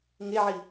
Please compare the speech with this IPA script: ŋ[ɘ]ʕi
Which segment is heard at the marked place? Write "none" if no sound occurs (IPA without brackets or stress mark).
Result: e